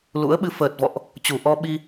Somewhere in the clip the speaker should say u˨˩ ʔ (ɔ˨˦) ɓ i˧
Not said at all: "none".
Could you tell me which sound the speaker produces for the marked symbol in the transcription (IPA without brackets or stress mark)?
ɔ˧